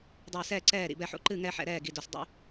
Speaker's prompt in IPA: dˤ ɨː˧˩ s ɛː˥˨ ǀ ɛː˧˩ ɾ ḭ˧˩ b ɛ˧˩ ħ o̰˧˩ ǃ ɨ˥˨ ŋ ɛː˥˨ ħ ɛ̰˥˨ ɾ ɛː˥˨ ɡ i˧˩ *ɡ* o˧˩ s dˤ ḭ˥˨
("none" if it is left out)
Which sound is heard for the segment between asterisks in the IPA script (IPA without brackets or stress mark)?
d